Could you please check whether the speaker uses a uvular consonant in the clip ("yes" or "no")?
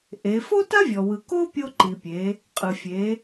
yes